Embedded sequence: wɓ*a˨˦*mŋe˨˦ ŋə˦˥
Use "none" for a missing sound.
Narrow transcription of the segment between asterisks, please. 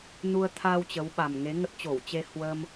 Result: a˨˩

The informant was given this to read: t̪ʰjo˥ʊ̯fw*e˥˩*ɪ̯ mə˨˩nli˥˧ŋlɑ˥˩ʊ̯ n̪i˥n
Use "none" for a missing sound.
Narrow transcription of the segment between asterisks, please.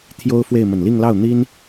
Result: e˥˩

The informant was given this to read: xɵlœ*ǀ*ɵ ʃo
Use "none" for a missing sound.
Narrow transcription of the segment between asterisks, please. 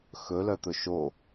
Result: t̪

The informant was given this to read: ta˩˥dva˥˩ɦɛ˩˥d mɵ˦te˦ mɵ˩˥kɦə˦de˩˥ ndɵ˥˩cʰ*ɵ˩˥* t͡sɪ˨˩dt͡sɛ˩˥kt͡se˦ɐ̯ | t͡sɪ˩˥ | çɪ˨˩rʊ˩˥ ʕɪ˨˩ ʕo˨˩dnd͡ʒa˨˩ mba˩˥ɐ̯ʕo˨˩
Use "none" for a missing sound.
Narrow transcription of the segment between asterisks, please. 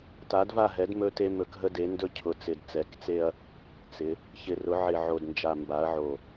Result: ʊ˩˥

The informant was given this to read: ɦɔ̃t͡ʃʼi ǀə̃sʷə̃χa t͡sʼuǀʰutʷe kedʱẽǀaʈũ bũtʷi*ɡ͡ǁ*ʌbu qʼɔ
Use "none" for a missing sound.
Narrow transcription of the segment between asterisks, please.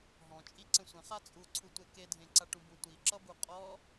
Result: ǁ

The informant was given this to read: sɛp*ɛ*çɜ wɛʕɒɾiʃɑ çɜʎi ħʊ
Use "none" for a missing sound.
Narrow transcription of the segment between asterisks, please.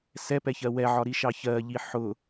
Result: ɛ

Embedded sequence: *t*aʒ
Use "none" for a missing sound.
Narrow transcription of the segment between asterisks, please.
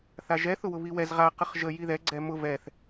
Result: θ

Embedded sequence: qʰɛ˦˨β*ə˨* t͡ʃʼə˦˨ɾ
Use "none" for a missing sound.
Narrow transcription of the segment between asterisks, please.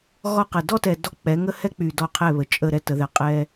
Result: ə˨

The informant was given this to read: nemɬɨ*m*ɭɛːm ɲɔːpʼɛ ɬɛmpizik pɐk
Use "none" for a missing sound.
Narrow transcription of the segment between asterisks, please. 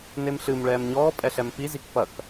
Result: m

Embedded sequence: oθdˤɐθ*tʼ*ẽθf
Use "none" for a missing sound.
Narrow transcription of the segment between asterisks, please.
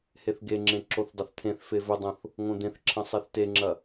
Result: t̪ʰ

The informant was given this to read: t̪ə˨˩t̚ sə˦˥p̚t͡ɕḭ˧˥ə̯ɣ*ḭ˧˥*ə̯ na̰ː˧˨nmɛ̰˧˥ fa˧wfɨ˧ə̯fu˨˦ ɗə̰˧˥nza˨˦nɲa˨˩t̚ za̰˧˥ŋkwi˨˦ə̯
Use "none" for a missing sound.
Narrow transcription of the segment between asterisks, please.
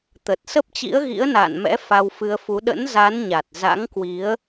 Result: ḭ˧˥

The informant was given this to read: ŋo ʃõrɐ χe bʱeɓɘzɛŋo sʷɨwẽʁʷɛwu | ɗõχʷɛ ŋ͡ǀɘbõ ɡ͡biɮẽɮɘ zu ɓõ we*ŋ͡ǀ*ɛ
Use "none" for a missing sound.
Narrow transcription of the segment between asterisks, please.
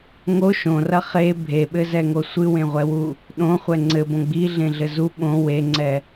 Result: ŋ͡ǀ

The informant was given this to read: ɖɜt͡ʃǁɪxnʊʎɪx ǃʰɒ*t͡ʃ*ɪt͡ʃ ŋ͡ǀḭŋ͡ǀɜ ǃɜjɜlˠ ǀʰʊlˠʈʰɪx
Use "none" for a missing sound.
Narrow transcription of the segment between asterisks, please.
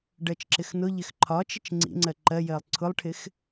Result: t͡ʃ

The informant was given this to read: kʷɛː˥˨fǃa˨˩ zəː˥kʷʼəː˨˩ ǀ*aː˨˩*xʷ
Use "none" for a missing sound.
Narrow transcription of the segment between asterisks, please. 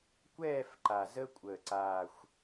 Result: aː˨˩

